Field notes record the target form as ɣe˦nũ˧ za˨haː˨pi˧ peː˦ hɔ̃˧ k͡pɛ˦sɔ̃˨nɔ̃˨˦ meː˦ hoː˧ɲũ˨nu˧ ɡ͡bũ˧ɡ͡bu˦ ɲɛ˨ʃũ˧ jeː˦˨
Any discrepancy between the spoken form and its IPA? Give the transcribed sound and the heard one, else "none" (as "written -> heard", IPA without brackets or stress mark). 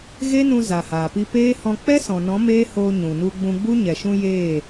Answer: none